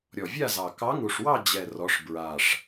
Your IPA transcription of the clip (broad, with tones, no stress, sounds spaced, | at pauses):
ɾʲ ɔ˨˩ vʲ a˥˧ z ɑ˨˩ k ɑ˧˥ ŋ u˨˩ ʂ w ɑ˥˧ d͡ʑ ɛ˨˩ r ɔ˩˧ ʂ b ɹ a˨˩ ʂ